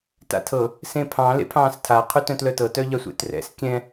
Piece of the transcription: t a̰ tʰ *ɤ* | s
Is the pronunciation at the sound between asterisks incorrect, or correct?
correct